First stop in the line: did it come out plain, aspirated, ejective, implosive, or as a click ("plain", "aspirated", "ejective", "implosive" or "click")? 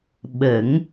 implosive